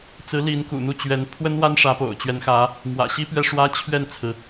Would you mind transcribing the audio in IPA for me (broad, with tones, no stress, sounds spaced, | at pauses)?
t͡s ɹ̩˧˥ l i˧˥ n k ṵ˨˩ n̪ u˥˩ t͡ɕ ɥ ɛ˧˥ n pʰ w ə˥ n w a˥ n ʂ ä˧˥ p o̰˨˩ ʊ̯ t͡ɕ ɥ ɛ˧˥ n x ä˧˥ | m w ä̰˨˩ ɕ i˥ p ɥ ɛ˥˩ ʂ w ä˥ t͡ɕʰ ɥ ɛ˥˩ n t͡sʰ ɹ̩˩